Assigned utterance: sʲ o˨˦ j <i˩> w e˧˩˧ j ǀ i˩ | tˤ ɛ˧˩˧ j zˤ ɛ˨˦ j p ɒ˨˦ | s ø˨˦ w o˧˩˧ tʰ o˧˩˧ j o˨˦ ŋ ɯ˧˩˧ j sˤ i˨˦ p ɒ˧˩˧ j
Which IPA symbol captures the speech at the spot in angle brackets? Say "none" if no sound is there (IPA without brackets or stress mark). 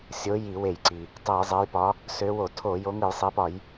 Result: i˧˩˧